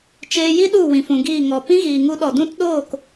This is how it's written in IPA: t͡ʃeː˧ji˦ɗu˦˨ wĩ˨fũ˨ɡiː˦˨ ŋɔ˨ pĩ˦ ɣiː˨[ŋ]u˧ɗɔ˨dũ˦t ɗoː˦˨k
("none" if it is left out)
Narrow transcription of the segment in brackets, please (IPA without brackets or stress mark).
ŋ